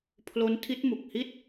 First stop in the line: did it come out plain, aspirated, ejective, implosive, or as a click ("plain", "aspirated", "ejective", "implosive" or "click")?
aspirated